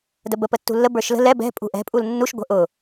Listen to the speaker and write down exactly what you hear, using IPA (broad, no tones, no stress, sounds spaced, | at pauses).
d ə b ə p ə tː ṳ lː ə b ə˞ ʃ l ə̤ l ɛ b ɛ̤ pʼ ṳ ʔ ɛ̤ pʼ u l nː u ʃ ɡʷ ə̤ ʔ ʊ